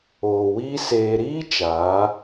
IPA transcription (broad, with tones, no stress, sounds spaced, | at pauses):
oː˨ w iː˦ s eː˧ ɾ iː˦ t͡ʃ aː˨˦